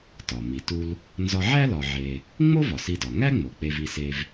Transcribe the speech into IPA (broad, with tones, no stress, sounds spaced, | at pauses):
t ɒ˩ m i˩ t u˧ l | n z ɒ˧ ʕ æ˥ l ɒ˧ ʕ e˧ | ŋ͡m o˥ v ɒ˩ s i˧ d ɒ˩ ŋ æ˥ ŋ͡m o˩ k͡p e˧ v i˧ s e˧ v